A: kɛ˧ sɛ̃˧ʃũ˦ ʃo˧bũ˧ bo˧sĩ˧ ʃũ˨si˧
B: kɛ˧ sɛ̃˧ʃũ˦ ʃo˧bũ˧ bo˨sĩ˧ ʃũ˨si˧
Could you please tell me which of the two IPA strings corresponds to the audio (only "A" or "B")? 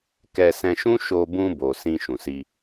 B